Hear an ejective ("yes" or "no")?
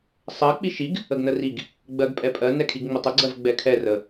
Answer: yes